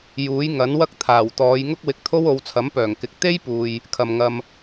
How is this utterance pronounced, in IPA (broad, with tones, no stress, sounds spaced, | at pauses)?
j uː˨˥ j ŋ ɐ˨˥ n w ɐ˥ k̚ t̪ʰ aː˨˩ w t̪ ɔː˨˧ j ŋ ʊ˥ k̚ w ɪ˧ k̚ t̪ʰ o˥ w o˨˧ w t͡sʰ ɐ˨˥ m p œː˨˩ ŋ k ɪ˨˥ k̚ t̪ e˥ j p uː˨ j | kʰ ɐ˨ m ŋ ɐ˧ m